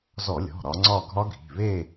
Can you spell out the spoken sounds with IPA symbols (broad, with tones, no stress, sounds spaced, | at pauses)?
z ɔ˧˩˧ lʲ ɔ̤˩˧˩ ɾ ɒ˨˦ ŋ͡ǀ ɒ˥˧ ɡʱ ɒ˦˥ ɡʱ i̤˩˧˩ β e˥˧